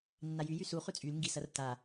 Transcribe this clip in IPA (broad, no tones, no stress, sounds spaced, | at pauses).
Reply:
nː a j y j y s u χ ʉ t͡sʼ y l ŋ ɡ i s ɐ r t a